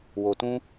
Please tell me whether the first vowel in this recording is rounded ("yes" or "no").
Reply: yes